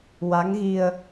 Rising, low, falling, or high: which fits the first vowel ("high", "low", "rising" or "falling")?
rising